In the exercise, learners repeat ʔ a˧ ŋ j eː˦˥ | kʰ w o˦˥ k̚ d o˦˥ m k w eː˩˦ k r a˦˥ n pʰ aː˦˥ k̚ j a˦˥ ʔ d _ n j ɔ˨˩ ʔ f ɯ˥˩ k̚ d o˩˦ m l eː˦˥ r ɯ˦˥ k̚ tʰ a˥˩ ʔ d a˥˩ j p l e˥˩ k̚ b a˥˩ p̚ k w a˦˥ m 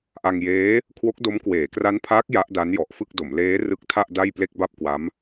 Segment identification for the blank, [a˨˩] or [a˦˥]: a˦˥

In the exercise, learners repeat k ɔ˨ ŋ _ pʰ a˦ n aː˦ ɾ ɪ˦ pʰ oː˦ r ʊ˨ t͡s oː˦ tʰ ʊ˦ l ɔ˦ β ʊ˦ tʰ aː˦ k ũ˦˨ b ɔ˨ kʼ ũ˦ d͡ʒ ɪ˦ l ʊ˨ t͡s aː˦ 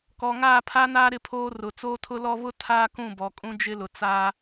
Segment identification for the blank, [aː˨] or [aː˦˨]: aː˦˨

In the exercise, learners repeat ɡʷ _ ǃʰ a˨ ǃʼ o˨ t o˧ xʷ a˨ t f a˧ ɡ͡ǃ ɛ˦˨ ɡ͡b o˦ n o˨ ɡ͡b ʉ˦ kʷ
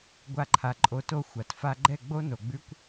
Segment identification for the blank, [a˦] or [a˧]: a˧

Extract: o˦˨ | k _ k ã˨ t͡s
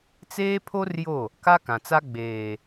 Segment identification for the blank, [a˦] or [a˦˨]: a˦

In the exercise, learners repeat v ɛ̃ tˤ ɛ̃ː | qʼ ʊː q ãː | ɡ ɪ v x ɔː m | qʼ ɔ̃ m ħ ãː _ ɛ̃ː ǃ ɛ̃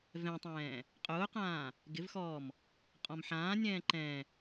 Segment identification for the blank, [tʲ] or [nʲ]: nʲ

